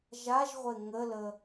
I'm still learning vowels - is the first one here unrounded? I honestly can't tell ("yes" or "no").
yes